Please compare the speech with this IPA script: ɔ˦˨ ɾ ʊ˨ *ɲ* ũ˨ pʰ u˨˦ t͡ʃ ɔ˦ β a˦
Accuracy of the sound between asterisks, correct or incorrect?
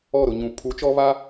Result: correct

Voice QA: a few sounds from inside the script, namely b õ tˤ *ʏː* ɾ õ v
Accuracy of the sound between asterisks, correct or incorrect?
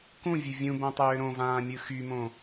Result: correct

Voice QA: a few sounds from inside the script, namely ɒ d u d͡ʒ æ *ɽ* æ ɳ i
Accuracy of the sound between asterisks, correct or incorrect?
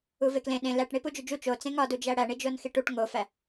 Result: correct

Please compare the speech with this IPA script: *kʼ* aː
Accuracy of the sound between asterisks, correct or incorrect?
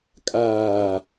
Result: correct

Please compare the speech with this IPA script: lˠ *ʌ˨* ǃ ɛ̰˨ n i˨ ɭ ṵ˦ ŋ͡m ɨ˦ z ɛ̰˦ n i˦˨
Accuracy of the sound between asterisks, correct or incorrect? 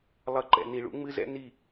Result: correct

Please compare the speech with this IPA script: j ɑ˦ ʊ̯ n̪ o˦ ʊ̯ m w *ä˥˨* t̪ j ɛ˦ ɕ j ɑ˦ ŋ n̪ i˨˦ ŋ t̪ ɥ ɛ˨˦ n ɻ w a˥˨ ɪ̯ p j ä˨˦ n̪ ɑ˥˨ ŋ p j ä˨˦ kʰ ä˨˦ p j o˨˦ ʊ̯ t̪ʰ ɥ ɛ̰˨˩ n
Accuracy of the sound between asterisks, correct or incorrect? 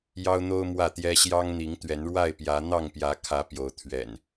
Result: correct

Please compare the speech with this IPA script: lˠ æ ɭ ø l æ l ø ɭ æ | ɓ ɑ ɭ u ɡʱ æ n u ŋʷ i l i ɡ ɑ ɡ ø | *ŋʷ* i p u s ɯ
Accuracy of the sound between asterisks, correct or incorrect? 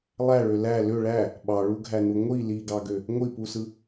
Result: correct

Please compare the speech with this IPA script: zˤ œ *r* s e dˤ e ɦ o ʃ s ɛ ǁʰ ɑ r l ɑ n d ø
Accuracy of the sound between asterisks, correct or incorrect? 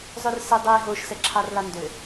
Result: correct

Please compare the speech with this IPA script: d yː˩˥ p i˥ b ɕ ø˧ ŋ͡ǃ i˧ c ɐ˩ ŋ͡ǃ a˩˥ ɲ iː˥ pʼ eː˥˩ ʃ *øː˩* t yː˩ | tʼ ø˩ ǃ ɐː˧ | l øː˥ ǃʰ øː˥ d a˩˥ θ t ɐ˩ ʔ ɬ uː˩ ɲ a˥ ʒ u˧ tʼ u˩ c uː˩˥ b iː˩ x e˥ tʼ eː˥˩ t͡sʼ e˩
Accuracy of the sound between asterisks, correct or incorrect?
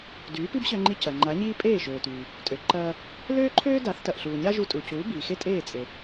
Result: correct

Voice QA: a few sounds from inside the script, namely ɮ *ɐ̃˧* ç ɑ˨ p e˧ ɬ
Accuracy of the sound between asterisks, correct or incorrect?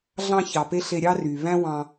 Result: incorrect: ɑ̃˧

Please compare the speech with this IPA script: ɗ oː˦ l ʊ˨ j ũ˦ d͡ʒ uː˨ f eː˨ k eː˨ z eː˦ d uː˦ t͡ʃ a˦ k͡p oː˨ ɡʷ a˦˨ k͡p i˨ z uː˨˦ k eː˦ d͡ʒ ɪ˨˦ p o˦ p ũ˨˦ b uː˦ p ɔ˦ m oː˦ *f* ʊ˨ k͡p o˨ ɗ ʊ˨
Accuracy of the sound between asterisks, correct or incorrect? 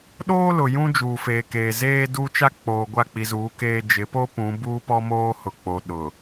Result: incorrect: h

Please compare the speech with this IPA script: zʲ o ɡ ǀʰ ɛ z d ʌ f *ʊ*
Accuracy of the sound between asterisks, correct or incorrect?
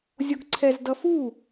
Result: incorrect: u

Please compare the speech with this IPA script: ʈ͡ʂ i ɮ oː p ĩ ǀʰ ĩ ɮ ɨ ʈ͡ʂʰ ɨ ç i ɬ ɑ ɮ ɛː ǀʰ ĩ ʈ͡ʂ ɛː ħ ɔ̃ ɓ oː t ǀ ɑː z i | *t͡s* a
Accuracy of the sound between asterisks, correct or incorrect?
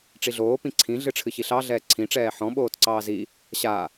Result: incorrect: ɕ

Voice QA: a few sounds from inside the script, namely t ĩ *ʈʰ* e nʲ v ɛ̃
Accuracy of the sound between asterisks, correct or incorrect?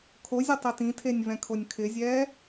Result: incorrect: tʰ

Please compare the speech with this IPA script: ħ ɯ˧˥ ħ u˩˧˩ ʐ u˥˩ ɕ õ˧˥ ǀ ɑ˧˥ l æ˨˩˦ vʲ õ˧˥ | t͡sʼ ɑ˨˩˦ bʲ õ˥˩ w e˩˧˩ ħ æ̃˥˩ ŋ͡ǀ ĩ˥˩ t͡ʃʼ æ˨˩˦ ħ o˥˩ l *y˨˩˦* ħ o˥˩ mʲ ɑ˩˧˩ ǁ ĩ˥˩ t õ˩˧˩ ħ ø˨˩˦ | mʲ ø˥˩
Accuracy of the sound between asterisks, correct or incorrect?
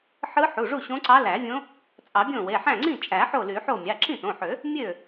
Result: correct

